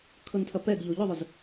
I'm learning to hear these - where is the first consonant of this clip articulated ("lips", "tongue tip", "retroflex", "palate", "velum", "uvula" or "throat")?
velum